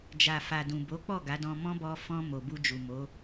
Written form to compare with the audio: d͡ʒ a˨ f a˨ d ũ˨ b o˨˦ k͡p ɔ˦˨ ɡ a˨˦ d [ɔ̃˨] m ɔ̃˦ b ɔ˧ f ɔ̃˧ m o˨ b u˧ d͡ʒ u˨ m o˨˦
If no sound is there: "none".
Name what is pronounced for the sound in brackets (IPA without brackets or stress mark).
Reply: ɔ̃˧